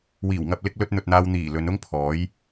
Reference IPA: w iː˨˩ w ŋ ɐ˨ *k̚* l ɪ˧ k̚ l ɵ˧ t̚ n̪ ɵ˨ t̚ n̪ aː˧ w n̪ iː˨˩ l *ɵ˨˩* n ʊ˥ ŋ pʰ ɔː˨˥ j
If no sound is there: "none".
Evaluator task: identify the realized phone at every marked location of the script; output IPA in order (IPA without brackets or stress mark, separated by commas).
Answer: p̚, ɵ˨˧